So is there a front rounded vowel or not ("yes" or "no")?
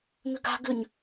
yes